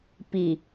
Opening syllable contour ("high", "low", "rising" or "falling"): low